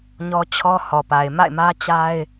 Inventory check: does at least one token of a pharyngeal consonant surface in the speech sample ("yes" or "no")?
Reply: no